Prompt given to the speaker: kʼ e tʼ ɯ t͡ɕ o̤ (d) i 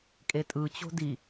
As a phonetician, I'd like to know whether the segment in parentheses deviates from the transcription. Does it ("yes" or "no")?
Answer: no